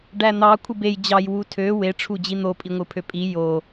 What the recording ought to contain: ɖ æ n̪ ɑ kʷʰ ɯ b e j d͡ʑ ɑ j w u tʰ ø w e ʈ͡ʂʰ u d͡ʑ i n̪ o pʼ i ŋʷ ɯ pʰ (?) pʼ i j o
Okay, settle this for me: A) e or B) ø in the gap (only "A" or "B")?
B